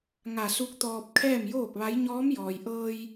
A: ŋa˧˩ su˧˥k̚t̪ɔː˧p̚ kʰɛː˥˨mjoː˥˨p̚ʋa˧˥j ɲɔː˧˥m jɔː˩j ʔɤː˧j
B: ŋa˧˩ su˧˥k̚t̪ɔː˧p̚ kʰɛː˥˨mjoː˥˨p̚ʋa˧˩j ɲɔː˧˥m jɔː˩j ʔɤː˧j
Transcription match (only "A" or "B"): A